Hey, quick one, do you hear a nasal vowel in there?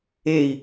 no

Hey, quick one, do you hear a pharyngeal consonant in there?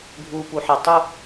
yes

